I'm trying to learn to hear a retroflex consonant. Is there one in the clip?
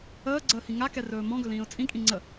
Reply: no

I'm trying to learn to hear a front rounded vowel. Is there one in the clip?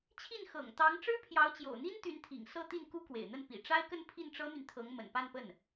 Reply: yes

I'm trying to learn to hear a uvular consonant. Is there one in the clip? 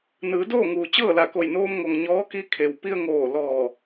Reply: no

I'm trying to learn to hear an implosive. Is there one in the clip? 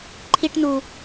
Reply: no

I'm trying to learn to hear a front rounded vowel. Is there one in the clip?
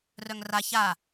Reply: yes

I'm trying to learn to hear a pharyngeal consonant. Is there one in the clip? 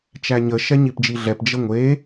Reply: no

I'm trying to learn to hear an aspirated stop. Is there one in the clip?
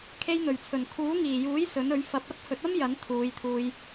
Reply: yes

